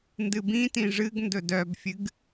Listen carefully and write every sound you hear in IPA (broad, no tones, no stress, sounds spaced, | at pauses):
n d ɨ b ĩ t ĩ ʐ ɨ ɡ n d ɵ d œ b fʲ ɨ ɡ